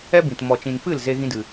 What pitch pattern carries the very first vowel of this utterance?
high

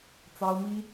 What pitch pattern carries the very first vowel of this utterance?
high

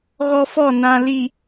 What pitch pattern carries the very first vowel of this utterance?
high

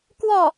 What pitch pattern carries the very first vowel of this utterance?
falling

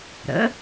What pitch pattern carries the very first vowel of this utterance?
rising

